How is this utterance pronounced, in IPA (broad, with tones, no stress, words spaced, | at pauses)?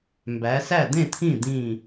mbæ˨˦sæ˥˨d̪ẽ˥˨t̪ʰĩ˥˨ d̪ĩ˥˨